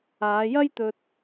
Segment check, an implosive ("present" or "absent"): absent